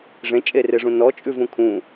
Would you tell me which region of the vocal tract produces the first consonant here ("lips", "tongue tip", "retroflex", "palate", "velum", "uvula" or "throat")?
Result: retroflex